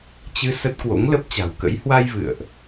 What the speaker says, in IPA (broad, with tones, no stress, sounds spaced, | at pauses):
t͡ɕ ɨ˧ s ə˦˥ t̚ k w o̰˧˥ ŋ l ə˦˥ p̚ t͡ɕ a̤˨˩ w k ə̰˧˥ j h w a˧ j v ɨ̰˧˨ ə̯ ʔ